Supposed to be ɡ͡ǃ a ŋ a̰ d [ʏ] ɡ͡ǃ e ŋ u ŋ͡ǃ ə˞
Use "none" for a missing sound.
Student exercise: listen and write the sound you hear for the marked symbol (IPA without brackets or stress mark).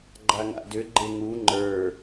ʏ